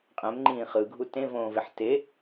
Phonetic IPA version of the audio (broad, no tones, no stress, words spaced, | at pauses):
qʼɛ̃mŋ͡ǃĩː χɯɡʱu tẽvõːveħ te